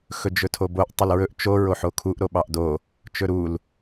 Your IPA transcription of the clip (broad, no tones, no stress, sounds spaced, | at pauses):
x ɵ d͡ʒ ɵ tʰ o b o ʔ tˤ ɵ l ɹ ɵ ʔ t͡ʃ o ɹ o ħ o kʰ u ʔ ɾ o ɓ ɑ ʔ d o | t͡ʃ ɵ ɾ u l